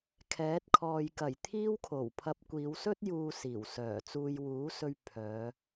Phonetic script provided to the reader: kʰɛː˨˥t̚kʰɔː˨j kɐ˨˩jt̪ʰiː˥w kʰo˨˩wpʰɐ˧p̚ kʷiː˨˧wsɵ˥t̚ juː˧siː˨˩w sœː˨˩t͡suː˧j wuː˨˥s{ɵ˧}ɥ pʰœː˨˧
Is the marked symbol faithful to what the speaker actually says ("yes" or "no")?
yes